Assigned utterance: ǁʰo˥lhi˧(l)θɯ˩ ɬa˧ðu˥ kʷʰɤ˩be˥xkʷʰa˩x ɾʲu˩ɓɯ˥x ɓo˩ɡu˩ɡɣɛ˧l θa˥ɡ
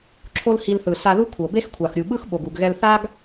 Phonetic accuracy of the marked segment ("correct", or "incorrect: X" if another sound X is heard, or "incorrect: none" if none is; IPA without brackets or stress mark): correct